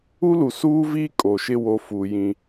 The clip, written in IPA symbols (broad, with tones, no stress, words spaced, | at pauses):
u˦lu˨ suː˦viː˦ kʼo˨ ʃɪ˦wo˨˦fuː˨ jĩ˦